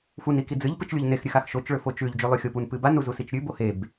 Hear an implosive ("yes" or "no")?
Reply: no